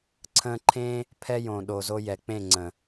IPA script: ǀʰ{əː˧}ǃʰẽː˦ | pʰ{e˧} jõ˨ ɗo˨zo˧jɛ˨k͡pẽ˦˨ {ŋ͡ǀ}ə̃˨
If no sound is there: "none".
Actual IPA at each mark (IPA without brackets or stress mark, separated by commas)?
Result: ə̃ː˧, ɛ˧, ŋ͡ǀ